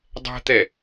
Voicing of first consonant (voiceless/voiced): voiced